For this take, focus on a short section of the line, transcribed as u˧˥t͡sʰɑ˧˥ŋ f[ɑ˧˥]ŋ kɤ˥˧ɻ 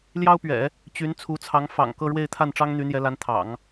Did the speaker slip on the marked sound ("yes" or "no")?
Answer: yes